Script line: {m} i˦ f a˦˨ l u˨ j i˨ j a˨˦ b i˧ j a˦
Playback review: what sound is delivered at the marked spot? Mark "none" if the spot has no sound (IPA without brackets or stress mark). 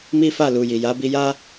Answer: m